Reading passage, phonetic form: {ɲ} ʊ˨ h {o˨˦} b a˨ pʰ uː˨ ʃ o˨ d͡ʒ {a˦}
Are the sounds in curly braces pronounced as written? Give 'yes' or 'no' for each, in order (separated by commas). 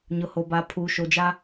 yes, no, yes